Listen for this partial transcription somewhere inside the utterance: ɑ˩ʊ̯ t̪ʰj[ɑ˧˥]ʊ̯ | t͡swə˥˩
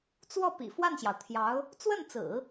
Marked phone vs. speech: correct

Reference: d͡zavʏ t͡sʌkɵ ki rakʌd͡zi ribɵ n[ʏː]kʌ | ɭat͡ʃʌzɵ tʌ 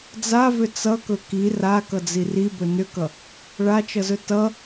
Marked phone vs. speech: incorrect: ʏ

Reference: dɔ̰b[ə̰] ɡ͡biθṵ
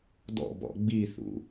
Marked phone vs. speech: incorrect: ɔ̰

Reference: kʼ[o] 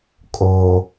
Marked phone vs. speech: correct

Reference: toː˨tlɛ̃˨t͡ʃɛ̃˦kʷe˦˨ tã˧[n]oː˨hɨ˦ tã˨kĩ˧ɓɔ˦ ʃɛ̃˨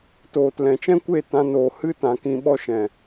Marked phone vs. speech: correct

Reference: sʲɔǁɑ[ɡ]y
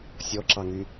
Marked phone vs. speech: incorrect: ŋ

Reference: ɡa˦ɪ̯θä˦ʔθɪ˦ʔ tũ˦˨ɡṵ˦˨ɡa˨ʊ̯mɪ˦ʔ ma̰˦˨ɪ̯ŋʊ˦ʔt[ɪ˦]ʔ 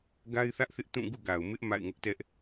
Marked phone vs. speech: incorrect: ɛ˦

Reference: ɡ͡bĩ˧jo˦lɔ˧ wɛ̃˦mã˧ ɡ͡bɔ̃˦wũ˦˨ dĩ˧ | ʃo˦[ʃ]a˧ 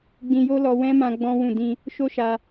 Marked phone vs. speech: correct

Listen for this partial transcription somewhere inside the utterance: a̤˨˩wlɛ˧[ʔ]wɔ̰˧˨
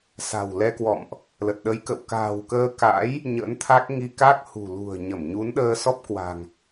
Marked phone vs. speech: incorrect: k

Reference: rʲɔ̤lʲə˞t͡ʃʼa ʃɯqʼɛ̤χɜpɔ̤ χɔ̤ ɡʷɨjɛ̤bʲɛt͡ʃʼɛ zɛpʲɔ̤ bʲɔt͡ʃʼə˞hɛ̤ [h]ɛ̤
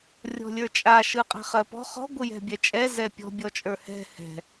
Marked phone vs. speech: correct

